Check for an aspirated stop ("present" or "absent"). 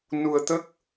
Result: absent